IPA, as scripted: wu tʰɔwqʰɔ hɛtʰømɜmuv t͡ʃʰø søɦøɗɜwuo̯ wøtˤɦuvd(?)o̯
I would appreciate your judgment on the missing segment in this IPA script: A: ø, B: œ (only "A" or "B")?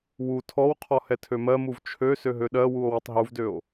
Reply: A